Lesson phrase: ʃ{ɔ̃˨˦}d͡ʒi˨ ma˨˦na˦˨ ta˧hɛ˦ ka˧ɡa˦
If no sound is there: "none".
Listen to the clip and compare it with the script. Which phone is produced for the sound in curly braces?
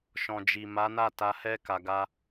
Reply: ɔ̃˨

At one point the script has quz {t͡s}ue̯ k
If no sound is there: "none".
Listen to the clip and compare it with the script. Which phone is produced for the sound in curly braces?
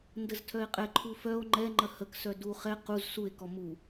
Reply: s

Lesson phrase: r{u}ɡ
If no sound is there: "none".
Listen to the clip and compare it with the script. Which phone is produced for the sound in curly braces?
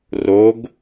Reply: o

